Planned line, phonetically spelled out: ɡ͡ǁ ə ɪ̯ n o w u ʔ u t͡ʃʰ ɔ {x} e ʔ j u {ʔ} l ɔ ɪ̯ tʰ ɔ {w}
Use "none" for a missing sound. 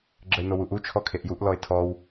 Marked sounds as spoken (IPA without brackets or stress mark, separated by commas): kʰ, ʔ, w